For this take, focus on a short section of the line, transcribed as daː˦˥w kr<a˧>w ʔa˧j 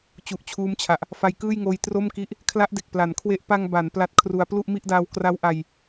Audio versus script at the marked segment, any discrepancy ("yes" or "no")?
yes